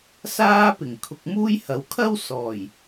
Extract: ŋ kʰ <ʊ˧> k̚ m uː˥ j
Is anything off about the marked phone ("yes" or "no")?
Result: no